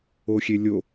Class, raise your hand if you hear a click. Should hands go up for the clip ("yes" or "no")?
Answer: no